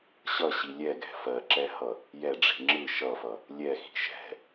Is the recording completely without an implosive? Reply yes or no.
yes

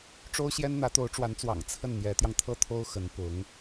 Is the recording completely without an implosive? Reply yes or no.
yes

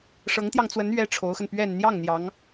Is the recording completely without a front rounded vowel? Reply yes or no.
yes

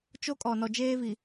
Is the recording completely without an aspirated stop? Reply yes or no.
yes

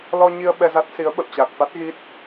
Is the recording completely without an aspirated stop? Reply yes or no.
yes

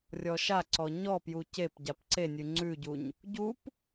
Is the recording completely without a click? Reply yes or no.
no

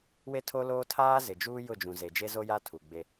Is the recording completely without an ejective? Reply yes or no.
yes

